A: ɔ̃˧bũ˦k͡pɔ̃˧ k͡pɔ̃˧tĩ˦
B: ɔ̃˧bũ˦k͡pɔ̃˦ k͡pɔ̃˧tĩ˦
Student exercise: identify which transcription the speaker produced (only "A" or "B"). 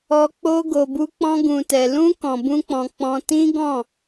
A